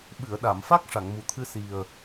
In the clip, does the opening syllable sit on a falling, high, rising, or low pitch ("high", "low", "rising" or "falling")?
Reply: low